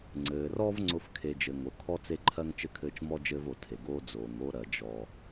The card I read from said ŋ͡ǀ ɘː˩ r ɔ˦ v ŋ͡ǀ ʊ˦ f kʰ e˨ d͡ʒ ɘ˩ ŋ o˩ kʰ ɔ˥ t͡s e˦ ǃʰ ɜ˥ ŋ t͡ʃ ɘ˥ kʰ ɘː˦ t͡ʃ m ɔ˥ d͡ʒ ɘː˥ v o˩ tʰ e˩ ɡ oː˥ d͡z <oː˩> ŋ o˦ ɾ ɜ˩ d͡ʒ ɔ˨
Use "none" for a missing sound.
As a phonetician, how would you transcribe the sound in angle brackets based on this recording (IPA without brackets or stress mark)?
oː˩